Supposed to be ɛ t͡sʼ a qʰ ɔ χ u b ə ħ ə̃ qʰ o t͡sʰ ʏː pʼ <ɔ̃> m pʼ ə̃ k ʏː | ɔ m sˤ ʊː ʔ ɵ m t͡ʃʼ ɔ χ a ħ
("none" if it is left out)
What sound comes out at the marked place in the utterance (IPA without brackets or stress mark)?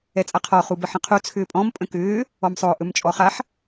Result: ɔ̃